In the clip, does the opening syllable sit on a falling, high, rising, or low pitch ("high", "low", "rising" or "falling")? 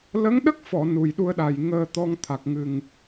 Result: rising